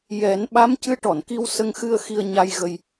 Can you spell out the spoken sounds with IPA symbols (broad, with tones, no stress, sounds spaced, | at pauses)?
j ɛ˨˩˦ n ɓ a˧˥ m c ɨ˧˥ ʈ ɔ˨˩˨ n k i˧ w s ə˧ ŋ x ɨ˧ ə̯ x i˧ ə̯ ɲ a˧ j ɣ ə˧ j